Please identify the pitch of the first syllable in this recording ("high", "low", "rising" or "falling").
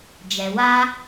low